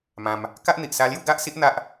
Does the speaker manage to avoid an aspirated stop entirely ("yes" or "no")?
yes